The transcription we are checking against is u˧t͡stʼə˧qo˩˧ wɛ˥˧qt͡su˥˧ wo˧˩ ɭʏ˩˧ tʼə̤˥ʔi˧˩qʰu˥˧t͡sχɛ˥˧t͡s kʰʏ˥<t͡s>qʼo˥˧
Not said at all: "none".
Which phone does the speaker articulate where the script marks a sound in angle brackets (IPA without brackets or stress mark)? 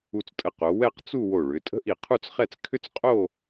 t͡s